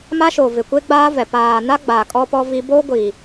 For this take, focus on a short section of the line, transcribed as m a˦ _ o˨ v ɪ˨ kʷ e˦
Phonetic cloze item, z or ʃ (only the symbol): ʃ